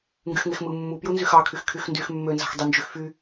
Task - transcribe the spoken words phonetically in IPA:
ŋ ɡ y x ŋ e x m ɯ mː u p j u n z y x ɑ kʰ y x kʰ y x n d y x mː ø n z ɑ̤ x dˤ y n d͡ʒ y x f y

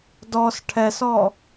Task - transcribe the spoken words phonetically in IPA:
d ɔ s ʈʰ ɛ s ɔ

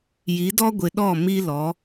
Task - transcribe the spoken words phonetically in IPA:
j i˨˦ d ɔ˦ ɡʷ ɪ˨ ɗ ɔ˦˨ m i˦ l ɔ˨˦

